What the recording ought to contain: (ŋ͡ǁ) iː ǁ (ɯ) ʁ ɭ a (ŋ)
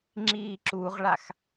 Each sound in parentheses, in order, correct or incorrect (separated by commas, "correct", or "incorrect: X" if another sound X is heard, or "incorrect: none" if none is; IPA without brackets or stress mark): correct, incorrect: u, incorrect: x